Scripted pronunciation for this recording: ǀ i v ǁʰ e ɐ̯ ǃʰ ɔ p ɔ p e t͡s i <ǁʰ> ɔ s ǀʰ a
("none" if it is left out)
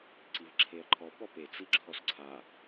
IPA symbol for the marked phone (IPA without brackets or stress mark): ǁʰ